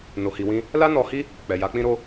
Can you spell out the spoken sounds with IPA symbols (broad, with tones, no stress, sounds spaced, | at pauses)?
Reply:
n o˧ h i˧ w ĩ˦ | l a˦ n ɔ˧ h i˦ | k͡p ɛ˨ j a˨˦ k͡p ĩ˦ ɾ o˦